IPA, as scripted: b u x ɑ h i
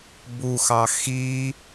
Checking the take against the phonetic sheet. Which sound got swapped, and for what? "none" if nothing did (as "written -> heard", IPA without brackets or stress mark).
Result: h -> x